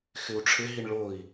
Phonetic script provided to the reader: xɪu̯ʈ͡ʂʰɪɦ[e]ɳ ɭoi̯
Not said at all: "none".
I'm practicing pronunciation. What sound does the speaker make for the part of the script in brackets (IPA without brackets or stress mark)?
i